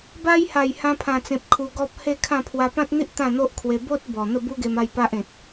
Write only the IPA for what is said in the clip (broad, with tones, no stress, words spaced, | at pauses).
ba˧jha˨˩j hã˧pʰã˨˩t͡sẽ˨p̚ kʰu˧ɡɔ˦p̚ he˥˧kʰã˥˧ pʰwa˧pã˦t̚n̪i˦ʔ t̪ã˥˧n̪o˦ʔkʰwe˧ bo˦t̚ bɔ˨˩ n̪ə˥˧bu˦ɡe˧m a˥˧jpa˦ʔ ẽ˨t̚